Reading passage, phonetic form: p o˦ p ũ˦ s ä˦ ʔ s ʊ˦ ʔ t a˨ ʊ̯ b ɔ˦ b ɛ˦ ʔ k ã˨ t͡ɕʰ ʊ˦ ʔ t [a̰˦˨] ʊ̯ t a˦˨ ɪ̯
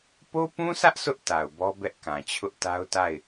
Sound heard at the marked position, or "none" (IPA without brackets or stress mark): a˦